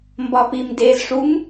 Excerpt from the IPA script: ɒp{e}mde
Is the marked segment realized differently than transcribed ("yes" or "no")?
yes